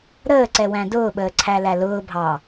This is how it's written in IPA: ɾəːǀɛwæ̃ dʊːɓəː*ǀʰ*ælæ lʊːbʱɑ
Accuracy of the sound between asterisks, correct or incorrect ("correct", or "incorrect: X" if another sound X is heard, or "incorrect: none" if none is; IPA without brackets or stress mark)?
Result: correct